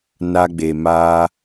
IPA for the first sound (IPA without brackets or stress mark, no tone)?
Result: n